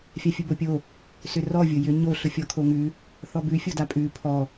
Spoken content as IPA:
fʲ a fʲ ʊ b o pʲ o | s ʏ r ɔ vʲ ʊ j ʏ ɲ o ɬ ʊ fʲ ɔ kʰ o ŋ ʉ | θ ɔ b ʉ fʲ o d a pʼ ʉ pʰ ɔ

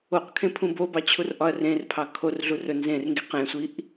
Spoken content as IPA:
o q kʰ ẽ pʰ ũ b o b ɑ t͡ɕʰ u r ʔ ɒ ɐ̯ r ẽ r pʰ ɑ kʰ o r ɮ u r ɵ n z ẽ r ŋ ɡ i q ẽ sʷ i ʔ

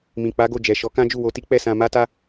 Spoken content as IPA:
m ĩ˨ k͡p a˨˦ ɡ o˦˨ d͡ʒ ɛ˨ ʃ ɔ˨˦ k ã˦ d͡ʒ u˦˨ w o˧ t i˦ k͡p ɛ˦˨ s ã˧ m a˦ t a˦

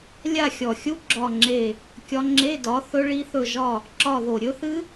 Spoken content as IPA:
lʲ a˦˨ xʲ ɔ˨˩ xʲ u˦˥ ɡ͡ǁ ɒ˦˨ ŋ͡ǁ e˦˨ | kʲ ɒ˦˥ ŋ͡ǁ e˧˥˧ d ɒ˨˥ θ ɵ˦˥ ɭ i˦˥ θ ɵ˦˨ ʒ ɒ˦˨ | ǁ ɒ˦˨ ð o˨˩ ɾʲ ɵ˦˥ θ ɨ˦˥

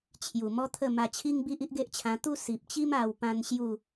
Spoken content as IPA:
t͡ɕʰ j u˨˩ m ɔ˦ t̪ʰ ə˥˧ m a˧ t͡ɕʰ i˦ ŋ b i˦ ʔ i˦ ʔ ɡ e˦ ʔ t͡ɕʰ ã˧ t̪ u˦ s i˨ p̚ t͡ɕ i˦ m a˧ w p ã˦ n ɕ j u˥˧

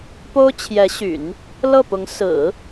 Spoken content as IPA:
p o˥ ʊ̯ t͡ɕʰ j ɛ˧˥ ɕ y̰˨˩˦ n | l ɤ˥˩ p ʊ˧˥ ŋ s ɹ̩˨˩˦

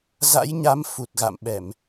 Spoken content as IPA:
z a̰˧˥ j ɲ a˨˦ m f u˨˩ t̚ ɣ a̰˧˨ m ɓ ɛ˧˩˨ m

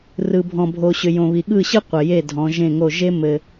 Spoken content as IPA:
r ɯ˨ bʱ ɔ̃˨ bʱ o˨ ɕ ʏ˨ j õ˨ β i˨ ɠ ɯ˦˨ ɕ ɯ˦ qʷ ɘ˨ j e˦˨ dʱ ɔ̃˨˦ ʒ ẽ˦˨ ŋ o˦˨ ʒ e˦ m ɘ˦

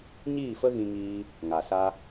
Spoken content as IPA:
ɲ iː˦˨ f ə˦ ɣ ĩ˧ ŋ iː˧ | ŋ a˨ s a˧

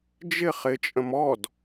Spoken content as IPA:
d͡ʒ ɪ χ ɪ t͡ʃʼ ə̃ m ɔ d

